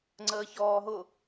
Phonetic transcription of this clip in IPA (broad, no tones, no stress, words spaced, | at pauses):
ŋ͡ǀəːçɔːɦʊ